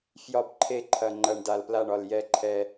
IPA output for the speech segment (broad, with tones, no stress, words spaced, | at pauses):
fjɒ˥˨bǃʰe˥˨ǃʰɐ˧ ŋ͡ǃɐ˧ɳ da˧˩lpla˥˨ɳɒ˧˩l jɛ˧ǃʰɛ˧